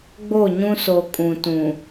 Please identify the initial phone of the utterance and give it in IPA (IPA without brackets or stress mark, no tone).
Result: ɡ͡b